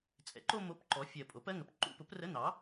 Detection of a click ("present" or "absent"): present